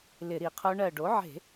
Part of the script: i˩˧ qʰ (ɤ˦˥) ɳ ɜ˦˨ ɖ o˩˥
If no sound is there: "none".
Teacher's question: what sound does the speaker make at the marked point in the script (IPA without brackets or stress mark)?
o˦˥